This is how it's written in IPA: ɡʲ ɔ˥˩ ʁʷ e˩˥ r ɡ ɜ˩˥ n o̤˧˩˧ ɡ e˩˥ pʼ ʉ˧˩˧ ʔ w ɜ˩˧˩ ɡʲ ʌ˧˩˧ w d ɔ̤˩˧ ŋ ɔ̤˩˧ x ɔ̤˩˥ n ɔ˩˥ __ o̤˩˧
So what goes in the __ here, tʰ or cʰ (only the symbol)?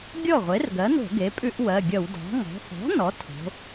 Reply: tʰ